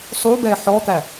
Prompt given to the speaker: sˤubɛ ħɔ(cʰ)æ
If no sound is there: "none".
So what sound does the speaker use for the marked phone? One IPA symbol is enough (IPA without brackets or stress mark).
t̪